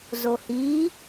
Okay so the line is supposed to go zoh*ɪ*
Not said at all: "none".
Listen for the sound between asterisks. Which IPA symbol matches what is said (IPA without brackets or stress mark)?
i